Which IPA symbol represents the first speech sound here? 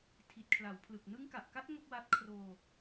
tʰ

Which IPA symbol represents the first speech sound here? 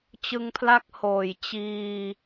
t͡ɕ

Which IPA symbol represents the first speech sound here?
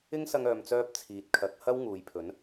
ɪ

